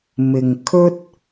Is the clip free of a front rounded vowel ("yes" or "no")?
yes